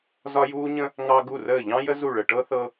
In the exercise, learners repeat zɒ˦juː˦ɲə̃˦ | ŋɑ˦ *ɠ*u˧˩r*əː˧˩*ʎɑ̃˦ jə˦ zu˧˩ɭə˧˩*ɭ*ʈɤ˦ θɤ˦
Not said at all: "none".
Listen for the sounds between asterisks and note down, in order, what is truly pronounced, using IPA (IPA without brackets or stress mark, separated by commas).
ɡ, əː˧˩, none